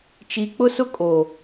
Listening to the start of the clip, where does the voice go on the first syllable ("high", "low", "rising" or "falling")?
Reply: low